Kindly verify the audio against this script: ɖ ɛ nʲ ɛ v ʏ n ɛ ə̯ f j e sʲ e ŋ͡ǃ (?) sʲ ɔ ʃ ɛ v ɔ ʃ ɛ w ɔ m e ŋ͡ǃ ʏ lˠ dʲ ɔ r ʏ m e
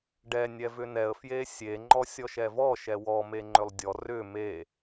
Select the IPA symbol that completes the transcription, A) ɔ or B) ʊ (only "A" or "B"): A